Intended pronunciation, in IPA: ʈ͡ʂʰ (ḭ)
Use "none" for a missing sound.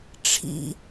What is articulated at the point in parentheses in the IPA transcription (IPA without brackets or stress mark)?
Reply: ḭ